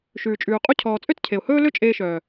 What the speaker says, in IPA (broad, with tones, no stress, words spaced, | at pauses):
ʃʉː˨t͡ʃʼʉː˨qʼu˦ cʰɔː˨t͡sʼø˦tcʰe˨ʊ̯hɵː˦ lø˦ t͡ʃʼeː˧ʃœː˨